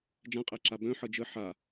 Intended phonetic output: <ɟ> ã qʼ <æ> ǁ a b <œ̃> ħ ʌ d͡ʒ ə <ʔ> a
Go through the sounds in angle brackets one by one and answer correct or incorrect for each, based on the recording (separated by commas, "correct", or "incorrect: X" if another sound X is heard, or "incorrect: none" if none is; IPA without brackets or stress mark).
incorrect: d͡ʒ, correct, correct, incorrect: ħ